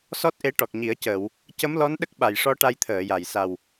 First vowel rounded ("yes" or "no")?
yes